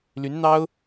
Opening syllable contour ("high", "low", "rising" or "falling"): rising